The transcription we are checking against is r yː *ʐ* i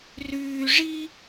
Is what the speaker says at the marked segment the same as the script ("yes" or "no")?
yes